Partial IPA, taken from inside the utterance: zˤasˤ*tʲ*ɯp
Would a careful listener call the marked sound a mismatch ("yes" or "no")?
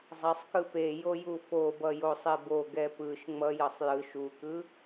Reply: yes